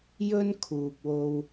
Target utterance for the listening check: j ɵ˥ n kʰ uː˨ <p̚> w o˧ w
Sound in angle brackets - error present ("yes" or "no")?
no